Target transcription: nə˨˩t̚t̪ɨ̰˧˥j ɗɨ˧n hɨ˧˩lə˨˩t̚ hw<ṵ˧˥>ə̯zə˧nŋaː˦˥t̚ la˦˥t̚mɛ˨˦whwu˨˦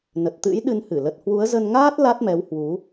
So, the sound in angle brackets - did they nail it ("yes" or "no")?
no